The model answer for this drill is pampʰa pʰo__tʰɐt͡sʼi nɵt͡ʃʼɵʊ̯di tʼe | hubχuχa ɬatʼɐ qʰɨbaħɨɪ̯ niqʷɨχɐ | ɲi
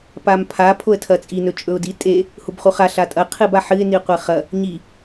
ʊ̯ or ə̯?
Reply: ə̯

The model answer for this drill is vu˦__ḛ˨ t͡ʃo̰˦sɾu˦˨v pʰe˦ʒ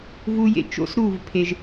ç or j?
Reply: j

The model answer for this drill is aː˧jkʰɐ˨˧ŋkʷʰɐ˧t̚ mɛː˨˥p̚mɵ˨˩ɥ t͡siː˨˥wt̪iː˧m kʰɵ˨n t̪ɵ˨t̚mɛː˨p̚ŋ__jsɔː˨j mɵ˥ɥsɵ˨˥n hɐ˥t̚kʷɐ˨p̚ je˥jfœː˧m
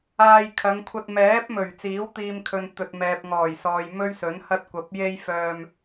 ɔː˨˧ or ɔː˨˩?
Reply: ɔː˨˩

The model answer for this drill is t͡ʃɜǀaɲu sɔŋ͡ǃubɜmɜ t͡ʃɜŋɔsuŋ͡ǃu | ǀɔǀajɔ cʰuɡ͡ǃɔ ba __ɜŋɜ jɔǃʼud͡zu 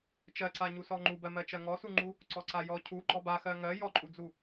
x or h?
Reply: x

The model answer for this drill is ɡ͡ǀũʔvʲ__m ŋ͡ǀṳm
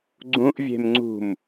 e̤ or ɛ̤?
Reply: e̤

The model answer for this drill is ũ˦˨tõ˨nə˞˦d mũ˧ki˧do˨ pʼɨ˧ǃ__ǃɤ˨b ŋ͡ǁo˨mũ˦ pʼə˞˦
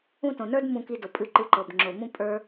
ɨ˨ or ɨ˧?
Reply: ɨ˧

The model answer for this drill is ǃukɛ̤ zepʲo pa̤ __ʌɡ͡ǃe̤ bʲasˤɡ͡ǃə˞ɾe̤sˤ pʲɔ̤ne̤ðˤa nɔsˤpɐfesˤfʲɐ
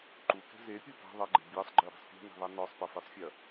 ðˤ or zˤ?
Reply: ðˤ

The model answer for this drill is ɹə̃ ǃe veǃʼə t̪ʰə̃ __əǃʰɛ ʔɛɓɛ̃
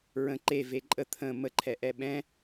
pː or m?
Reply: m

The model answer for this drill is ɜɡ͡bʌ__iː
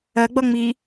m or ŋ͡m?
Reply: ŋ͡m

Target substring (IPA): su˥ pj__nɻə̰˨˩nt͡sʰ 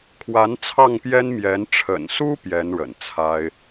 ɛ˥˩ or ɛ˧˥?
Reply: ɛ˧˥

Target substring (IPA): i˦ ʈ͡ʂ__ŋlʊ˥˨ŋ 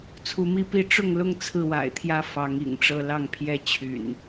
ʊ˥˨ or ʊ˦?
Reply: ʊ˥˨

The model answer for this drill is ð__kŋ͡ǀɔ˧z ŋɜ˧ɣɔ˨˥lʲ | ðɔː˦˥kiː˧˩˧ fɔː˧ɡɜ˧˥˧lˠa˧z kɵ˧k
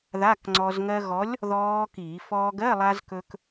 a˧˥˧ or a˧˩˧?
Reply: a˧˥˧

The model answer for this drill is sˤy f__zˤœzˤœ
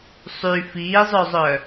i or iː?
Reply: iː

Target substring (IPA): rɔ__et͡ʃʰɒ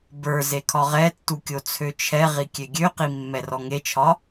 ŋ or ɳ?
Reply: ŋ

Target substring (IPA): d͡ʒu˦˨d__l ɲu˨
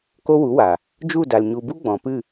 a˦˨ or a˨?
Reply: a˨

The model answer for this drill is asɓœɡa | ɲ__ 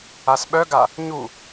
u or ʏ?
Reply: u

